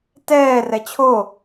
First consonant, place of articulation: alveolar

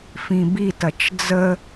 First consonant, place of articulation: labial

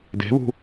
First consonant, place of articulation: alveolar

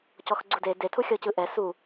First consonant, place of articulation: palatal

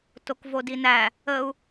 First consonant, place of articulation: alveolar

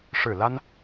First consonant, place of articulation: retroflex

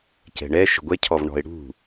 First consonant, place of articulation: palatal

